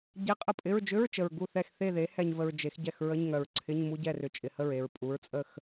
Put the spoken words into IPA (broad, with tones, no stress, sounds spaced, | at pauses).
ɟ e˧˥˧ qʼ ə˥˩ pʼ ɪ˧˥˧ ɹ d͡ʒ ʏ˧˥˧ ɹ t͡ʃ ə˨ ɹ ɡ u˥˩ θ ɛ˥˩ x θ e˥˩ ð e˩˥ h ɛ˨ ɲ v ə˨ ɹ d͡ʒ e˩˥ x ɟ ɛ˥˩ x ɹ ə˧˥˧ ɲ ŋ œ˨ ɹ ǀʰ ɪ˧˥˧ ɲ m u˧˥˧ ɟ ɛ˥˩ r ʏ˨ t͡ʃʼ ɪ˨ h ə˥˩ ɹ e˨ ɹ pʼ u˩˥ ɹ t͡sʼ ə˥˩ x